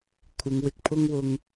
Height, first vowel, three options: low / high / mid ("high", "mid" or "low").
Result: high